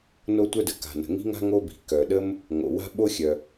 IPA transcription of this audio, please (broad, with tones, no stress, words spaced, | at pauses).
no˥tʷœ˥də˩ ka̤˩nə̤˩ ŋi̤˥ŋa̤˥ ŋo˥bi̤˩ kœ˩ɗə˥m | ŋo̰˩wa̤˥ ɓo˥xʲœ˩